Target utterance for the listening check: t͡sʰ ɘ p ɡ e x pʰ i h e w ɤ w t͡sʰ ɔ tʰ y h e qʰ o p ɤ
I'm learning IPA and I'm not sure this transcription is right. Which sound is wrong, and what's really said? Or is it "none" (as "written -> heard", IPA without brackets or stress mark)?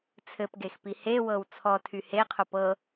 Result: pʰ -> p